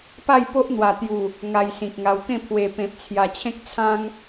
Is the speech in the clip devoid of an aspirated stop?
no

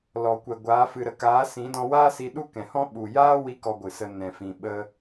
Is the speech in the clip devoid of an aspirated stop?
yes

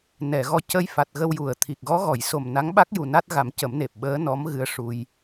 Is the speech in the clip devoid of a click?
yes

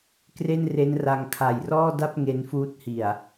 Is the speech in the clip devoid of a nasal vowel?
yes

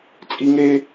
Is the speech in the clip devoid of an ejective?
no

